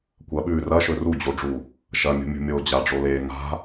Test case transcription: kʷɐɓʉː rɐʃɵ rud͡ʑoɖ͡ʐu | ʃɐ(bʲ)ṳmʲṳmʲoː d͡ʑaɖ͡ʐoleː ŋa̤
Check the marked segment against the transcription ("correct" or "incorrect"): incorrect